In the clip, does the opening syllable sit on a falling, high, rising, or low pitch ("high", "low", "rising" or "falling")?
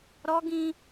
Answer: high